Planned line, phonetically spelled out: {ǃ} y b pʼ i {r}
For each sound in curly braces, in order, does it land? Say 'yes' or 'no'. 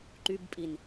yes, no

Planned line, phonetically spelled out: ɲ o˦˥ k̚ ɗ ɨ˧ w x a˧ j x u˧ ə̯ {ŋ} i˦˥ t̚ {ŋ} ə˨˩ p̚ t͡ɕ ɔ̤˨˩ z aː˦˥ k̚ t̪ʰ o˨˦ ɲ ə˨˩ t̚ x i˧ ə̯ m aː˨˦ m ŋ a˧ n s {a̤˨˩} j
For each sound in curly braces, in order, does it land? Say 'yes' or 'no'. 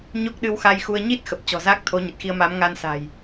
no, no, yes

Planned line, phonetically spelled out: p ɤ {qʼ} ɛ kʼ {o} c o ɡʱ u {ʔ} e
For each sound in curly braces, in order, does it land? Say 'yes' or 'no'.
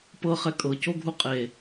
no, no, no

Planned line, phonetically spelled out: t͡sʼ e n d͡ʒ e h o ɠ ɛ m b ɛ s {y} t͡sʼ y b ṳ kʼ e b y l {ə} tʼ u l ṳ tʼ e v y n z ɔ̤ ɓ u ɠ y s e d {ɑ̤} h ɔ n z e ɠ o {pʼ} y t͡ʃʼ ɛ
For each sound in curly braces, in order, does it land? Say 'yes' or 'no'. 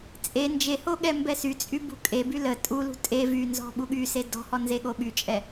yes, yes, no, no

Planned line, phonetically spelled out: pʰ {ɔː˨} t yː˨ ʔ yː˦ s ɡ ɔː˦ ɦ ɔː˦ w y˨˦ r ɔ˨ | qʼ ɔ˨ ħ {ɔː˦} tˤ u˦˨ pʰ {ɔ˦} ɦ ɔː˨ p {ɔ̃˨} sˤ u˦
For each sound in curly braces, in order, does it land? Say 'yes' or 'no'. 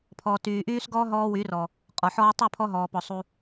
yes, yes, yes, no

